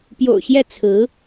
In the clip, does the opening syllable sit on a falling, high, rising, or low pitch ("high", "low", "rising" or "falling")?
low